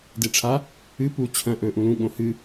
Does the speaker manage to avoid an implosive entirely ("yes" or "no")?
no